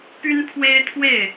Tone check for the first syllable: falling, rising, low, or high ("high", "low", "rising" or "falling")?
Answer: high